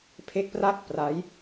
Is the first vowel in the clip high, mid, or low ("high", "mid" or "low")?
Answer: mid